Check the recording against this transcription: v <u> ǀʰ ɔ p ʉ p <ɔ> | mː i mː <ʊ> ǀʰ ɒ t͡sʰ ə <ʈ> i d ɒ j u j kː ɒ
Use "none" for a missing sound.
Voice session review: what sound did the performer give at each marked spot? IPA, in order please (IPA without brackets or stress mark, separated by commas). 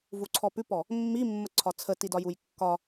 u, ɔ, ə, t